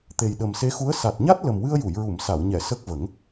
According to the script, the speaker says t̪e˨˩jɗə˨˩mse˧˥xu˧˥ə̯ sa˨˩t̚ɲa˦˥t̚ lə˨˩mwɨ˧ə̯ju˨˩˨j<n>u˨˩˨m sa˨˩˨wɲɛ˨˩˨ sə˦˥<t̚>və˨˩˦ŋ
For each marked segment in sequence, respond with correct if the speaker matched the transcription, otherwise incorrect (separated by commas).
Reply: incorrect, incorrect